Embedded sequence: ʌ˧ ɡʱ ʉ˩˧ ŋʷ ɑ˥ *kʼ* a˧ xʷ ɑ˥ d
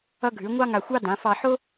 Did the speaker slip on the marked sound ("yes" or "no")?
yes